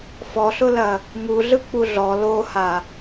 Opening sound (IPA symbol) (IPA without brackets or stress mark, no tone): f